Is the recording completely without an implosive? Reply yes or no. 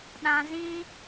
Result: no